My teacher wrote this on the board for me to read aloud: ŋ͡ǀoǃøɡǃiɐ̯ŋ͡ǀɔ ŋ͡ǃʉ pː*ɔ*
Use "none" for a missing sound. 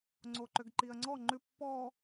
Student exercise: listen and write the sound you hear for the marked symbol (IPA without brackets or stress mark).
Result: ɔ